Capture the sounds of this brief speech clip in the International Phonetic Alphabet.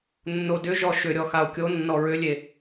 nː o d ʏ ʒ ɔ ʃ ʏ ɾʲ ɔ x a o̯ kʲ o nː ɔ ɹ ʏ lʲ e

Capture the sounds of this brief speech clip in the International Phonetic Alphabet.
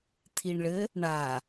t̪ʰ i ɳ ɭ ɘ | ɳ a

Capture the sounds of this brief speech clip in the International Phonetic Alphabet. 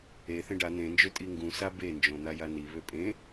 e θ ẽ ɖ a n̪ ẽ n d͡ʒ ø tʼ i ŋ ɡ ũ s a b e n d͡ʒ õ n̪ a j a n i β ø pʼ ẽ

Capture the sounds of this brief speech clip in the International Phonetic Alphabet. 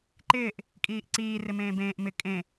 ǃ ɪː ʔ | kʼ iː ʔ ǀ iː r ɪ m ẽː b ẽː ʔ m ɪ kʼ ẽ

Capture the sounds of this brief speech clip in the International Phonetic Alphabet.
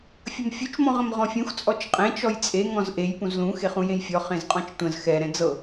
fʲ ə m fʲ u t͡ʃ m ɔ̃ ʁ ə̃ m ʁ ɔ̃ fʲ ũ x t͡sʼ ɔ t͡ʃ qʼ ẽ t͡ʃ ɔ j t͡sʼ e ŋ ɔ̃ z ʔ e j p ũ z l ũ x e χ ũ j ẽ j fʲ ɔ χ ẽ z qʼ ɔ̃ t͡ʃ tʷ ə̃ z x ɛ ɾ ɛ̃ d͡z ɤ

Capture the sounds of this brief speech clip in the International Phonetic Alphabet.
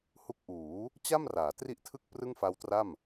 h u˦˥ k̚ ʔ uː˩˦ | t͡ɕ a˥˩ m r aː˩˦ t r i˥˩ ʔ tʰ ɯ˥˩ k̚ p r ɯ˥˩ ŋ f a˦˥ w t r a˥˩ m

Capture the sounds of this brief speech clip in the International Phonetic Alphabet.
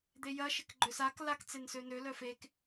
d̪ e j ɐ ʃ ɪ k ɡ͡ǃ ʏ s a k l a k t͡s e n s ø n ø l œ f e k

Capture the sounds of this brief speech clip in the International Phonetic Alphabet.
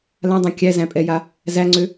l ã dˤ ã kʲ æ z æ̃ pʼ ɛ j a | z æ ŋ͡ǀ ø

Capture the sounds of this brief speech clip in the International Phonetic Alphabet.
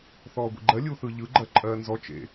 θ ɔː ɡʷ ḛ ɡ͡ǃ ɜ lʲ u θ ɯ ʎ ɯ ɡ͡ǃ ɜ ǃʼ ɜː n z ɔ t͡ʃ ḛ

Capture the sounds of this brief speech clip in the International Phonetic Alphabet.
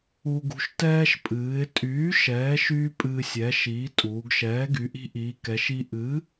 u˧ ɡ ṳ˧ ʃ t ɛː˧ ʃ pʼ ɨː˩˧ ɪ̯ tʼ yː˩˥ ʃ ɛː˩˥ ʃ yː˧ pʼ ɨː˧ sʲ ɛ˩˥ ʃ iː˩˥ tʼ uː˩˧ ɡ ʃ ɛː˩˥ ɡ y˩˧ ʔ i̤˧ ʔ iː˩˧ k ɛ˩˧ ʃ i˧ ʔ ɨ˩˥

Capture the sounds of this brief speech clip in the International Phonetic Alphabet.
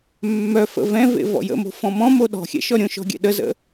mː œ f ə̰ v ɛ̃ v ḛ v ɔ̰ j ə̰ m o̤ f ɔ̃ m ɔ̃ m o ɗ ɔ̤ xʲ ɛ̰ ʃ ɔ ɾʲ õ ʃ ɔ̤ ɡʲ ɛ̰ ɗ ə z ə̰

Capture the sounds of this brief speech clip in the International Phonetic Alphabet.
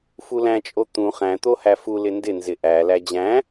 f u l æ̃ t͡ʃʼ o t̪ ũ χ æ̃ t̪ o h æ f u l ɪ n d ɪ n z ɪ ʔ æ l æ d͡ʑ æ̃

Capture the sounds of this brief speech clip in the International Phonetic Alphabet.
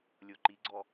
lʲ o ǃ i ɡ͡ǀ ɔ

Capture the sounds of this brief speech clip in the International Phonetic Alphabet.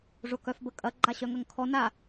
ʐ ʊ k œ f b ə kʼ ɐ ɡ͡ǃ a ɕ œ ŋ ɐ ŋ kʰ ɔ n a

